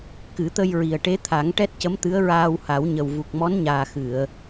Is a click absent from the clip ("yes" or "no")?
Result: yes